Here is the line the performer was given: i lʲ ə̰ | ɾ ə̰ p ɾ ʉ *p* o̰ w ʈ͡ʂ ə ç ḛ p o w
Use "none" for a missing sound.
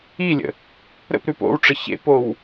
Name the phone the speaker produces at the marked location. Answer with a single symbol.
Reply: p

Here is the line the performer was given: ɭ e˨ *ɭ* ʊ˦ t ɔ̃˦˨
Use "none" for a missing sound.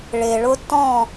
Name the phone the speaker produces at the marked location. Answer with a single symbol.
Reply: ɭ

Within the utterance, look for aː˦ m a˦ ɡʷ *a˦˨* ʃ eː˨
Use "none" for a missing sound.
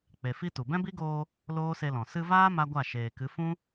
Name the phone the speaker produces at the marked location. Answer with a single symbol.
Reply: a˦˨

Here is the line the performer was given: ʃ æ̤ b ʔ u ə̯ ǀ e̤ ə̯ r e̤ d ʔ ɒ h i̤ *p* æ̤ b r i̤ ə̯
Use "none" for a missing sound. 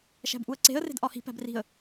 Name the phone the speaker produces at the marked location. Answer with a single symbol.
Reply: p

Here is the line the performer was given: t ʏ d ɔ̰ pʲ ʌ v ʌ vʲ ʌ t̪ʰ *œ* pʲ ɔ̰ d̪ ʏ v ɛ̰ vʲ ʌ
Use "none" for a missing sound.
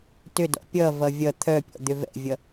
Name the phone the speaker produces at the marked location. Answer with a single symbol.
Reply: œ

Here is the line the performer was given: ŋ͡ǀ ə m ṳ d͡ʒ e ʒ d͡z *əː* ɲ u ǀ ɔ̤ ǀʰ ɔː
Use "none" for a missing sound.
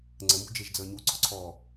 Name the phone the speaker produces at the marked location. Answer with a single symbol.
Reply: əː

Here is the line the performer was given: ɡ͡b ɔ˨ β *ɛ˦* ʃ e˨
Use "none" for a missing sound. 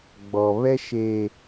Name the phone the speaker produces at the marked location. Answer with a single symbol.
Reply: ɛ˦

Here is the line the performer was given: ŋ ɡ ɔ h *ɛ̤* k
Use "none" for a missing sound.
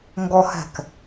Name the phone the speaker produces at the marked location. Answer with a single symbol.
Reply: ɛ̤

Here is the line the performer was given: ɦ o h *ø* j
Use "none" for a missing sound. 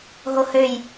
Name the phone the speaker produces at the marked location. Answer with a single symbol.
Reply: ø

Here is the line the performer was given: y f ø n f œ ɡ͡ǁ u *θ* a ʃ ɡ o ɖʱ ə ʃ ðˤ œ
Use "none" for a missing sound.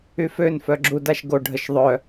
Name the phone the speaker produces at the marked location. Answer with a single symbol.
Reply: d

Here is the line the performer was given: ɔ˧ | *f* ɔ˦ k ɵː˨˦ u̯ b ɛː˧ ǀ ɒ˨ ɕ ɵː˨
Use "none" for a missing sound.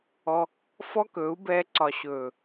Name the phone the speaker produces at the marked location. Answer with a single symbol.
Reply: f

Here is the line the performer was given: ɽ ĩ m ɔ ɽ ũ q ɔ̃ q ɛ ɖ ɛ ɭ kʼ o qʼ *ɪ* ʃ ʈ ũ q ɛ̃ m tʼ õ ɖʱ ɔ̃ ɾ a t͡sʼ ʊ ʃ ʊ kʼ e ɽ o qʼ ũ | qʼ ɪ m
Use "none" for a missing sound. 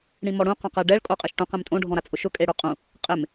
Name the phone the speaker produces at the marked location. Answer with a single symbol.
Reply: ɛ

